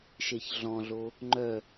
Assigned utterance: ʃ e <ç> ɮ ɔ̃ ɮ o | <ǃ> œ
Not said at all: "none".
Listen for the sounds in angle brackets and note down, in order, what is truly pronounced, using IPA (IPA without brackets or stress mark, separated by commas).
ç, ŋ͡ǃ